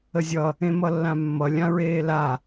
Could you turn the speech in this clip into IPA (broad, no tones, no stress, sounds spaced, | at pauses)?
ə zʲ ʌ | ẽ m ʌ lː ã mː ʌ lʲ ã ɹ eː l a